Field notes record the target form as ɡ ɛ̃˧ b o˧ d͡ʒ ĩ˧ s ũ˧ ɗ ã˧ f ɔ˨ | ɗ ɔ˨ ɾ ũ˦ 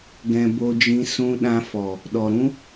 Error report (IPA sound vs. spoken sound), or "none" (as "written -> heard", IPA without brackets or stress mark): none